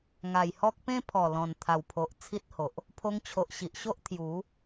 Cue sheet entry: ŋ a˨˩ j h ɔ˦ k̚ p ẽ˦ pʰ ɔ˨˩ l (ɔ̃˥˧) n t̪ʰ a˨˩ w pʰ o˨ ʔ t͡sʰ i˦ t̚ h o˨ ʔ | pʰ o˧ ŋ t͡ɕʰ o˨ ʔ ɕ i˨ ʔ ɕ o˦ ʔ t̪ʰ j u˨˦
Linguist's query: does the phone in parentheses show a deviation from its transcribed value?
yes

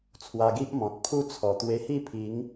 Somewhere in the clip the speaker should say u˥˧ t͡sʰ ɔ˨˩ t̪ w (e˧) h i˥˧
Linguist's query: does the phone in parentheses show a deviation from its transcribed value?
no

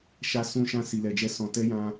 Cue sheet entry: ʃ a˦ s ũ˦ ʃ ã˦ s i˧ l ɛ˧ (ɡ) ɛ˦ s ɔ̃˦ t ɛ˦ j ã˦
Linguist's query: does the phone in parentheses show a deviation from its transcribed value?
yes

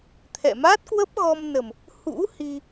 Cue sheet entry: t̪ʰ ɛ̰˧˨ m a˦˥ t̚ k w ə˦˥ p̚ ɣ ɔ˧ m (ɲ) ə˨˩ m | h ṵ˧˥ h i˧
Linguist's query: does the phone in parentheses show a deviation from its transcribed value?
yes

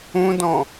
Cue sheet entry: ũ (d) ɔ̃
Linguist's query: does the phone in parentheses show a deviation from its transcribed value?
no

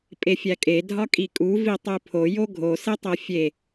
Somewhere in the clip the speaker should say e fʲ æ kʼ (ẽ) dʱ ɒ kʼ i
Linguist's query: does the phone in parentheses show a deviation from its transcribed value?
yes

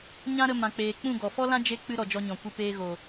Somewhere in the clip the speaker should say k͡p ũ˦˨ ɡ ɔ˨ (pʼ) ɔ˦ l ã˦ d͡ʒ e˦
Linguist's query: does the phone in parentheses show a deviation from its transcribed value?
yes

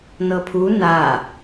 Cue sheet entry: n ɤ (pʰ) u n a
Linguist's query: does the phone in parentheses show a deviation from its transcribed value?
no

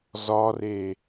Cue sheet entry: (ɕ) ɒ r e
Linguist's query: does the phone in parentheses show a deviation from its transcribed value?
yes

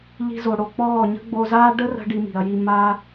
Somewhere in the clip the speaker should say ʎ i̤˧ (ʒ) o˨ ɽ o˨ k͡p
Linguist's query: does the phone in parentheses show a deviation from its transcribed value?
yes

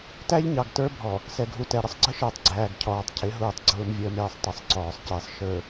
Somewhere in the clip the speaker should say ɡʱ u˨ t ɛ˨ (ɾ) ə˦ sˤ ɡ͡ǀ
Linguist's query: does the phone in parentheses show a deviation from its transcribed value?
no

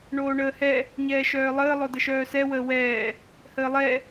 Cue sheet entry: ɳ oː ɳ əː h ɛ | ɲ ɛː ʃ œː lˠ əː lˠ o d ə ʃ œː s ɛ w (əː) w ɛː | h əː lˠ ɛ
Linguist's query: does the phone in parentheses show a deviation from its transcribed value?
no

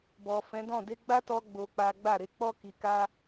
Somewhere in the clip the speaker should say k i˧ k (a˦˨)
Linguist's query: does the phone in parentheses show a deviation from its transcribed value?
yes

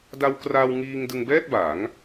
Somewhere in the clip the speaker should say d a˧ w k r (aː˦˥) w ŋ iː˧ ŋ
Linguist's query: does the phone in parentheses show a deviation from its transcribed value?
yes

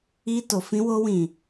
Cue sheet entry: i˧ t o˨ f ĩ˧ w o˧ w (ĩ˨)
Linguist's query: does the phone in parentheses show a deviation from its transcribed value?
no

